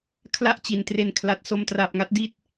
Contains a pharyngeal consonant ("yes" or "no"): no